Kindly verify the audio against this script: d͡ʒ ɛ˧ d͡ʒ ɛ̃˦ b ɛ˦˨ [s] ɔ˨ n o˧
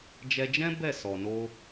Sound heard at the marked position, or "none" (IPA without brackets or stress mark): s